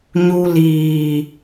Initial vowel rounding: rounded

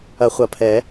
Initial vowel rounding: unrounded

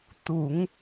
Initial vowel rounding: rounded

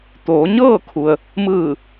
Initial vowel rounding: rounded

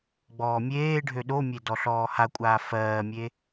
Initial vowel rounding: rounded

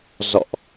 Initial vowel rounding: rounded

